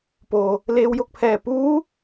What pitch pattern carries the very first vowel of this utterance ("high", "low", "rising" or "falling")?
low